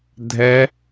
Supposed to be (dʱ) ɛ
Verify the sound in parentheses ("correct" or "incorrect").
correct